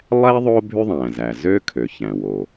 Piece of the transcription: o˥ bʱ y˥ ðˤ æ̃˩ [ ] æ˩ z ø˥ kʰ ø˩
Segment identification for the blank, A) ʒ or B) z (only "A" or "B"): B